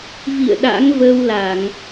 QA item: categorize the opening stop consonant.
implosive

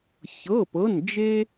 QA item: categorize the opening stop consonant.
plain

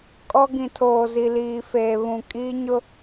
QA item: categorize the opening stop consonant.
ejective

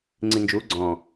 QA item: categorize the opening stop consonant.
click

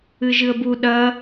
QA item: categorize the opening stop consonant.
plain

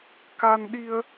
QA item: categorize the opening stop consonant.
plain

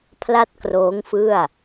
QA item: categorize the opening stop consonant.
aspirated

